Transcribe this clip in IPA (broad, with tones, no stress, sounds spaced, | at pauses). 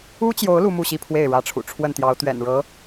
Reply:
u˥ t͡ɕ j o˧˥ ʊ̯ l u˥ m u˥˧ ɕ i˥˧ pʰ w e˥˩ ɪ̯ ɻ ä˧˥ ʈ͡ʂʰ ṵ˨˩ ʈ͡ʂʰ w ə˥˩ n t̪ j ɑ˧˥ ʊ̯ t̪ ɥ ɛ̰˨˩ n ɻ ɤ˧˥